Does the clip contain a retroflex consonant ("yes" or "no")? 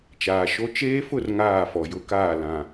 no